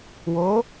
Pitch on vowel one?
rising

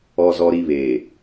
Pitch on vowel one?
high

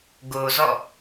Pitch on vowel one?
low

